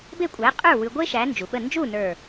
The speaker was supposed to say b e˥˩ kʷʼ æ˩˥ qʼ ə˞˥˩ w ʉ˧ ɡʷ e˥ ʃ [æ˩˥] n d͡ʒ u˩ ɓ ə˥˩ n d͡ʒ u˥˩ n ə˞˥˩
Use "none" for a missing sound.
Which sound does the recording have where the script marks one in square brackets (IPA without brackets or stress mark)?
æ˩˥